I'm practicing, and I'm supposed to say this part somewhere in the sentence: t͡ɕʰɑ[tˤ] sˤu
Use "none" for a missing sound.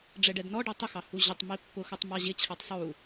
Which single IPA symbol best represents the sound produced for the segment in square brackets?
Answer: tˤ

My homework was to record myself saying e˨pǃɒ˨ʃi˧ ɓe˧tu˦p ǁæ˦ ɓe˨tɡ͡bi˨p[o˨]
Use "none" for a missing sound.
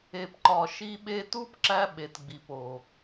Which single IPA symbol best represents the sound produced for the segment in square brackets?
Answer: o˨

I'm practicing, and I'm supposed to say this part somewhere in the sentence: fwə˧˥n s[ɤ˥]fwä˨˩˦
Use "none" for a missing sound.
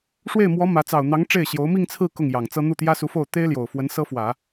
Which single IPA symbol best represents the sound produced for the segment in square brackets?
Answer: ɤ˥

